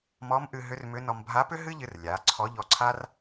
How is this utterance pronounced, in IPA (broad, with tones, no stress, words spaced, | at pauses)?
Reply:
mɔ˧˥mʔɨ˧ ɦʏ˧˥rmʏ˧˥nɔ˧m bʱa˧˥pʏ˥ɦɨ˥ʎɨ˧r lʲa˩˧ǀʰɔ˧˥ ʎɔ˧ǀʰa˥r